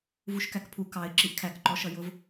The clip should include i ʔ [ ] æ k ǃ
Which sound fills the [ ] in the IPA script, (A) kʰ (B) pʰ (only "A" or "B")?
A